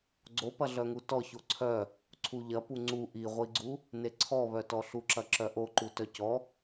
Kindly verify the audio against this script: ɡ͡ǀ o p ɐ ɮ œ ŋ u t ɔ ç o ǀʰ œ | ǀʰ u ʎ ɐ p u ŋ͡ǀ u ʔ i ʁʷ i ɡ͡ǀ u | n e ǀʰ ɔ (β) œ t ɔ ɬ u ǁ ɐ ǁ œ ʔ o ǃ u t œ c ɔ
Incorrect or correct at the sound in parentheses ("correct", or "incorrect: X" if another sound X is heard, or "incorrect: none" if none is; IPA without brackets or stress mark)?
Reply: correct